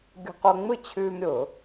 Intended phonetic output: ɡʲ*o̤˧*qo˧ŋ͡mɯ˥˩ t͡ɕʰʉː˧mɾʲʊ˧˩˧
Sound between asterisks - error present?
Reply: no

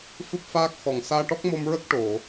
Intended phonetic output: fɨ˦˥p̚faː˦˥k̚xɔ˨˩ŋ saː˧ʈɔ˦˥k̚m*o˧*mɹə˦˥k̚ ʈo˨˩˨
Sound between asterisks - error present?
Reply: no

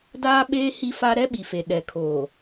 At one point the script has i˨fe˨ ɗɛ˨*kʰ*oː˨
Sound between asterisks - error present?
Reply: no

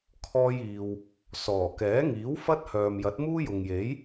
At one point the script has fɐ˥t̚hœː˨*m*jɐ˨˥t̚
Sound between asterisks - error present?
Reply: no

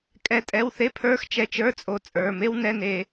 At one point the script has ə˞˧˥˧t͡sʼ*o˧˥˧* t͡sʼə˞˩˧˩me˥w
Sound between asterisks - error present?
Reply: yes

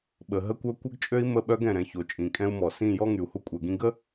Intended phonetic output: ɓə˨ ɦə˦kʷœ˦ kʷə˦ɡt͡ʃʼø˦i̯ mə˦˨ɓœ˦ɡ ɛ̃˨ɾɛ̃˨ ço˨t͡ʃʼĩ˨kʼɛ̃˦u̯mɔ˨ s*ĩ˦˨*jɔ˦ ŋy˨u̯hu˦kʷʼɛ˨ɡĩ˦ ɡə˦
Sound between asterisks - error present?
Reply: no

